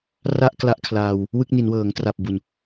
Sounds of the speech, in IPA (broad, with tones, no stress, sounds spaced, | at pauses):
r a˥˩ ʔ k l a˦˥ ʔ kʰ l aː˧ w | w ɯ˥˩ k̚ n i˩˦ n w ɤː˩˦ ŋ t r a˨˩ p̚ b u˨˩ n